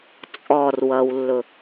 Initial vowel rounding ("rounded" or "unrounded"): rounded